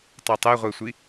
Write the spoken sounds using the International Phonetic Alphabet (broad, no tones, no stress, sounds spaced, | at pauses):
tˤ ɛ tˤ e ʁʷ e sʷ i